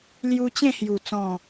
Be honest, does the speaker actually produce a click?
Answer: no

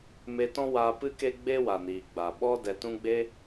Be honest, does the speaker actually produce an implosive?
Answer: yes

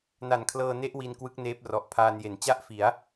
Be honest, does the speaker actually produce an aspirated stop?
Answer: yes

